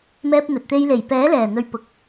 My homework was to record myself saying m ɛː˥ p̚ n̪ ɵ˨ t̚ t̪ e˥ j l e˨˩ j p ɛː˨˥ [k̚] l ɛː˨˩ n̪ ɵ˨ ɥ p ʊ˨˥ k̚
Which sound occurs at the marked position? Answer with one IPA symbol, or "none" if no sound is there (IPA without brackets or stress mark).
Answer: none